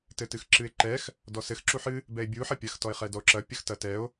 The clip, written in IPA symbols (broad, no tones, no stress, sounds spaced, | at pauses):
t ɘ t ɨ x ǁ ɨ e̯ ǃ ɛ x | d ɔ s ɘ x ǁ u ħ ɨ | b ɛ e̯ bʲ u ħ ɐ pʲ ɐ x t ɔ e̯ χ ɛ d ɔ o̯ ǁ ɐ pʲ ɐ x t ɐ t ɛ o̯